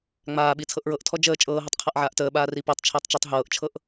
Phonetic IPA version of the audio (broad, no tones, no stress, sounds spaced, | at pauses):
ŋ͡m aː ɓ i t͡sʰ ɤ ʔ ɹ ɤ ʔ tʰ ɔ d͡ʒ əː t͡ʃʼ ɤː ɦ ɯ tˤ qʰ a ʔ ʕ aː ʔ t əː ɓ aː r i p ɤ tˤ t͡ʃʰ əː tˤ t͡ʃ əː tˤ ɦ ɤː ʔ t͡ʃʰ ɤ ʔ